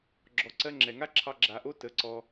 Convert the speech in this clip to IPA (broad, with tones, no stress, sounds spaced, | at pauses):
ɡ͡ǁ ɔ˨ ǀ ɜ˧ ŋ͡ǁ ɛ˨ ŋ a˦ ǁʰ ɑ˧ ɡ͡ǁ a˨ ʔ o˦ t ə˨˦ ǀ ɔ˧